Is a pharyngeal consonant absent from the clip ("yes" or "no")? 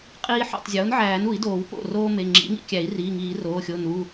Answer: no